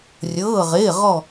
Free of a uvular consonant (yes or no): no